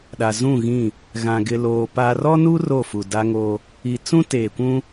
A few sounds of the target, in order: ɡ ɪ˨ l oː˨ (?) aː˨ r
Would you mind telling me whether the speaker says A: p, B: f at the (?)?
A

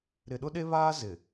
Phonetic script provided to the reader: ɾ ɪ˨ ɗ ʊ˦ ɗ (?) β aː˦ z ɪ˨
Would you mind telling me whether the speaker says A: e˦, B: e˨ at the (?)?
A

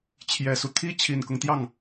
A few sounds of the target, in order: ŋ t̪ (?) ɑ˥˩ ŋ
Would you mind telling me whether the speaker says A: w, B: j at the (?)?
B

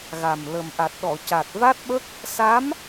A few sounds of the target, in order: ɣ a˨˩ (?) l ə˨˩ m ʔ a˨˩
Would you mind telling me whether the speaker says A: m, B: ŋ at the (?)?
A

